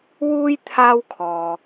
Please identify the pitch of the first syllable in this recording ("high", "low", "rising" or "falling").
high